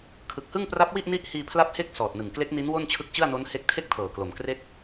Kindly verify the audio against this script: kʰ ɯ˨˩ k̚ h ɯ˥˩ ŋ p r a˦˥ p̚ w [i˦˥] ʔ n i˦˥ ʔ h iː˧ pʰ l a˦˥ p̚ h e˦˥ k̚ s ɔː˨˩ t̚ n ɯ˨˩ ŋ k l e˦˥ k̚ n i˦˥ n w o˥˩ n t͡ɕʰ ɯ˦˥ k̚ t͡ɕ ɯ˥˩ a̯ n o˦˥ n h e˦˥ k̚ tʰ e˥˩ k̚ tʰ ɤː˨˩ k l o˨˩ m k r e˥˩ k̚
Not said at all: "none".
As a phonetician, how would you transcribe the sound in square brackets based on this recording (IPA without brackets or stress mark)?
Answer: i˥˩